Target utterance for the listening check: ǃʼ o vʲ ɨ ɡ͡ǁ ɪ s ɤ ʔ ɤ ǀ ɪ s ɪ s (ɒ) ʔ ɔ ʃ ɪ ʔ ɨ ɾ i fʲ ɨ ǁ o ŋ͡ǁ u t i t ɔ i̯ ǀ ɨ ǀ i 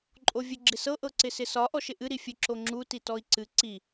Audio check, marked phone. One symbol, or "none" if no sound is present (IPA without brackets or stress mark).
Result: ɒ